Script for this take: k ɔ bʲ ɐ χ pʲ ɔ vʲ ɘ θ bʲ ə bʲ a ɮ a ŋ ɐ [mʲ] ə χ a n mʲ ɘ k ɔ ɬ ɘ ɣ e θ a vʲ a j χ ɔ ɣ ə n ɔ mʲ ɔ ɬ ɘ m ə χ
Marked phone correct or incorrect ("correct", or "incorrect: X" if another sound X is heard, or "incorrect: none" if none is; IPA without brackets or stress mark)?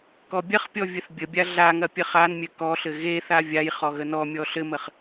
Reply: incorrect: pʲ